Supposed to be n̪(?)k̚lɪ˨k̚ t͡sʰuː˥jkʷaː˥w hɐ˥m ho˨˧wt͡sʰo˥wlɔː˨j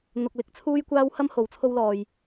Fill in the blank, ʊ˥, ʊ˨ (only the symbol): ʊ˨